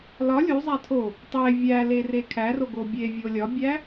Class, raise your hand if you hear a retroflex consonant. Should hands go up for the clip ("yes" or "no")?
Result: no